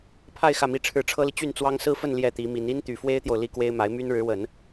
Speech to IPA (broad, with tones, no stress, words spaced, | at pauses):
pʰa˥˧ɪ̯ xä˥˧mi˥˧ʈ͡ʂʰɻ̩˥˩ ʈ͡ʂʰɤ˥li˨ t͡ɕy˥˩nt͡swɑ˥ŋ sɹ̩˥fə˥˧n ljɛ˥˩t̪i˧˥mi˧˥n i˥nt̪y˨˩fwe˥ɪ̯t̪jo˨ʊ̯ li˥kwe˥ɪ̯ ma˧˥ɪ̯my˥n ɻɻ̩˧˥wə˨˩˦n